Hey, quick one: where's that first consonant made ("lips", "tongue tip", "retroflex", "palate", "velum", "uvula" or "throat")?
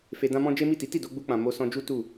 lips